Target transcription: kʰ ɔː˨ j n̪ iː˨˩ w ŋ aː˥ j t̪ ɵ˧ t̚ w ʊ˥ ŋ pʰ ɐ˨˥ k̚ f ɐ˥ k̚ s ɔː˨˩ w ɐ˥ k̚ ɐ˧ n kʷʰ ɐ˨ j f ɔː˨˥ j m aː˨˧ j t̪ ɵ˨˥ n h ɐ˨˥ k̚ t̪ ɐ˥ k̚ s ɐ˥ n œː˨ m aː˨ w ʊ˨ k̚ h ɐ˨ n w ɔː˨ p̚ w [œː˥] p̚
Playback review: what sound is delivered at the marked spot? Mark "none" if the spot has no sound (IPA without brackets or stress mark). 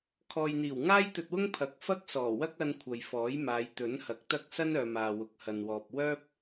œː˥